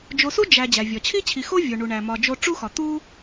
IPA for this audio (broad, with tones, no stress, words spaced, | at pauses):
d͡ʒo˨su˥ d͡ʒæ˩ d͡ʑæ˩vʲɒ˩t͡ɕʰi˥t͡ɕʰi˨ xo˥vʲo˩ɳu˩ɳæ˩ mɒ˩d͡ʒo˨ ʈ͡ʂu˦xɒ˩ t̪u˦